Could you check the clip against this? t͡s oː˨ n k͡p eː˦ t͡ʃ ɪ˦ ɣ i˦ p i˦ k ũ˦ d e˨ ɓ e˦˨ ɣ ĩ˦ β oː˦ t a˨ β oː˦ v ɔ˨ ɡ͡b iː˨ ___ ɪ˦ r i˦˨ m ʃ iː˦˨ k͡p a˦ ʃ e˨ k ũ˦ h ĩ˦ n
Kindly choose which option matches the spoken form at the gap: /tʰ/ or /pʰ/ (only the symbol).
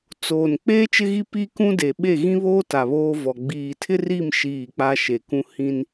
tʰ